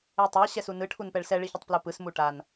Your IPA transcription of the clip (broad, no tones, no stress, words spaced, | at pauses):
etˤɛ ɕɛsunɯ ʈʰunpɛɭsɛ ɭiçʌtˤplopɯs muʈan